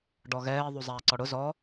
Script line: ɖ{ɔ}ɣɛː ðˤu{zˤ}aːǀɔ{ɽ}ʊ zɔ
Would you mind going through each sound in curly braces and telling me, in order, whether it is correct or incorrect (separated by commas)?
correct, correct, correct